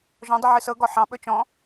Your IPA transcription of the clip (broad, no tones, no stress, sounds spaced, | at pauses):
ʒ ɔ̃ dˤ ɨ ʕ ɨ s ɤ ɡ ɔ ħ ɑ̃ ɓ ɵ t͡ʃ ɔ̃